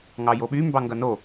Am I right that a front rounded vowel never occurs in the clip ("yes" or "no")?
no